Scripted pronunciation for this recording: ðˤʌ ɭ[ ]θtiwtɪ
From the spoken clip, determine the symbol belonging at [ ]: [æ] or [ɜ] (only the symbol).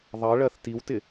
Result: ɜ